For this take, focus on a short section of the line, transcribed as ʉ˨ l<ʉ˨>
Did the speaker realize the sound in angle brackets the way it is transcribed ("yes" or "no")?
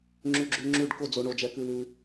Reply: yes